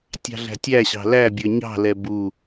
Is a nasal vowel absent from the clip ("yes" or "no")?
yes